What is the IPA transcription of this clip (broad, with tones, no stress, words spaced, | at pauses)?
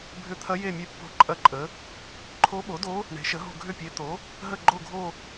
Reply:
bʱʏ˧˥t̪ʰɐ˧˥ je˦˨mʲe˧˥ pːo̤˦˨ǃʼɐ˦˨ǃʼə˩˥ | ǃʰo˧˥ɓo˩˥do˧˥ | ɳe̤˩˥ʃə˩˥ɦo̤˦˨ ɡʱʏ˦˨pʲe˩˥ t̪o˩˥ | ɦə˦˨ɡ͡ǃo˦˨ɡʱo˦˨